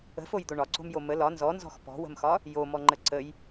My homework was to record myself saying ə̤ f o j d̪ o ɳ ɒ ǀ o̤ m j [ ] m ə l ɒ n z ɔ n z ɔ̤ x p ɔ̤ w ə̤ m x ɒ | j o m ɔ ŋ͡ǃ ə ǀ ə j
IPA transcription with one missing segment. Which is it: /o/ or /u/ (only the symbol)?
o